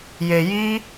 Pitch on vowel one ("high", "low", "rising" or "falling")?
low